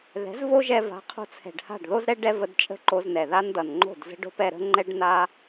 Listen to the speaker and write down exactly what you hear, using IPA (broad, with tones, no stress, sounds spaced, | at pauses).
ð ɛ̤˨˦ z v o˦ ʒ ɛ˧ v a̤˨˦ qʰ o̤˧ t͡sʰ ɛ̤˨ ɖ h a̤˦˨ ɖ ð o˦ z ɾ ɛ˦ ɖ ɛ˦ v ə˧ d t͡ʃʼ ə̤˦ ǃ o˧ z n ɛ˨ ð a˦ n d ʌ˨ n ŋ͡ǃ o̤˦˨ d z ə̤˦ ɖ o̤˦ p ɛ˧ ɾ ə̤˦ ŋ͡ǃ ɛ˦ ɖ n a˦